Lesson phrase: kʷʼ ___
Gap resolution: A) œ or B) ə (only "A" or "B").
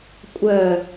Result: A